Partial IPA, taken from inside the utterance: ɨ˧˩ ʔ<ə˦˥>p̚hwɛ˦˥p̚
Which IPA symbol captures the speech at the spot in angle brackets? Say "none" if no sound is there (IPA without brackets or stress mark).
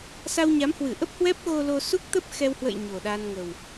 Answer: ə˦˥